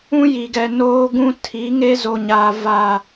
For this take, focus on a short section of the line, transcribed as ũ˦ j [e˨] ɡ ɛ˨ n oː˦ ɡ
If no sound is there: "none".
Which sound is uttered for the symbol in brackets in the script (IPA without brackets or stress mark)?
i˨